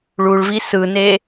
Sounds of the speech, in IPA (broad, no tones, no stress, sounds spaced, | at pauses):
ɭ u ɭ v i s ɯ n e